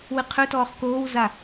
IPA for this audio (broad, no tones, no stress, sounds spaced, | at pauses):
w ɨ qʰ ɵ t ɔː χ k oː w z a